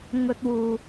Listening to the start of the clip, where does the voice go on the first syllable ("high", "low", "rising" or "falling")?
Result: high